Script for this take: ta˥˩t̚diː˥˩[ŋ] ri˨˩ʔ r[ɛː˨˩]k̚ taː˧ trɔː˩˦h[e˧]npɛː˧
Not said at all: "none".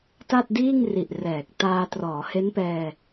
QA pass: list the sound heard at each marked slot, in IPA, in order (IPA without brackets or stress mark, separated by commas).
ŋ, ɛː˨˩, e˦˥